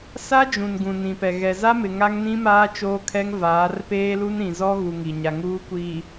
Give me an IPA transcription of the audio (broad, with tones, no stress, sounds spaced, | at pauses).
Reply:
s a˦ d͡ʒ ũ˨ n ɡ ũ˨ n ĩ˨ p ɛ˨ ɣ ɛ˨ z a˦ m ɪ˨ ŋ a˦ ŋ n ĩ˦ m aː˦ t͡ʃ oː˦ kʰ ɛ˦ ŋ v aː˨˦ r p eː˦ l u˦ n ɾ ĩ˨ z ɔ˦ ɣ u˨ ŋ i˨ ɲ a˨ ŋ uː˦ kʷ iː˨